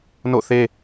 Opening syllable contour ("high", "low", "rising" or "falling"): falling